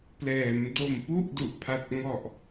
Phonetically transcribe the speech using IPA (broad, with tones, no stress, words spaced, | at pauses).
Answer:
plɛː˩˦m do˨˩mpu˥˩ʔdu˨˩ʔ pʰa˨˩t̚ŋɔ˨˩ʔ